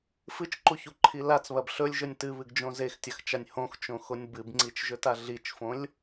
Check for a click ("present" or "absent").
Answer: present